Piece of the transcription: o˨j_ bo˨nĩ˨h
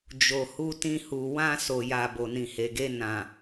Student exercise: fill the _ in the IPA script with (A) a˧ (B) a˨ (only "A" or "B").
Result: B